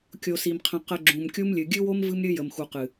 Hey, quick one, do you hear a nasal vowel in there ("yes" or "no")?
yes